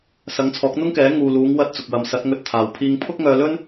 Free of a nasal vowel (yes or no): yes